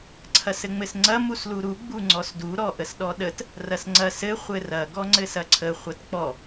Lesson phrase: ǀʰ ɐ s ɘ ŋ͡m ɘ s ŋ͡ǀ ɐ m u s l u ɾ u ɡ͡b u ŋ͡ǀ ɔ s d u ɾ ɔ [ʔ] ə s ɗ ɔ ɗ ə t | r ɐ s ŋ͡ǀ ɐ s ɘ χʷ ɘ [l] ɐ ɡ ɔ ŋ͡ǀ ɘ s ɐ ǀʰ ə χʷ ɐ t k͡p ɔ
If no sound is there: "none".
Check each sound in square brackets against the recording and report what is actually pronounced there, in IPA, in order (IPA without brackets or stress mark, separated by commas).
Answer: ʔ, r